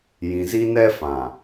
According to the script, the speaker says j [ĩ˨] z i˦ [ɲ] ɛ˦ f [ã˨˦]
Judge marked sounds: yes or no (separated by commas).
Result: yes, no, no